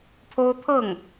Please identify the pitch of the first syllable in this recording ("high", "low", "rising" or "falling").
high